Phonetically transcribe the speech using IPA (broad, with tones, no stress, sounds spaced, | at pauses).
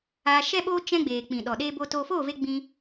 aː˧ ʃ ɛ˦ ɓ oː˦ t͡ʃ ɛ̃˦ ɡ͡b eː˨ k͡p ĩ˨ ɗ ɔ˨ ɗ eː˦ b o˦ t oː˦ f o˦˨ v e˧ ɡ͡b ĩ˧